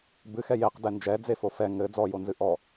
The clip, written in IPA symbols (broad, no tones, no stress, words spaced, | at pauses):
bɨxɛ jeqdɛ nd͡ʒɛd͡zefo fɛ ŋɘ d͡zɔjonzɨ ʔɔ